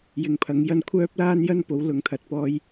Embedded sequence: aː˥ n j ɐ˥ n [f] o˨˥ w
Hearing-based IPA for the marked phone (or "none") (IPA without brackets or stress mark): p